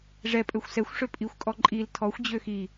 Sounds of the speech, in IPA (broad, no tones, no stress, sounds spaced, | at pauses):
ʐ ɛ pʼ ø xʷ s ɛ xʷ ʂ ø pʼ i xʷ kʼ ɔ ǃʼ i l tʰ ɔ xʷ d͡ʑ ø x i